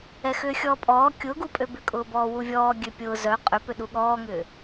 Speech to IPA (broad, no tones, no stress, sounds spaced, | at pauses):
ɛ x ʏː xʲ ɔː pʼ ɔː kʲ ʊː ɡ u pʼ ø b ʏ kʼ ʊː b ɔː w u vʲ ɔː ɡʲ ø pʲ ʊː z œ qʼ ʏ p ʏ ɗ u ɠ ɔː ŋ ʏː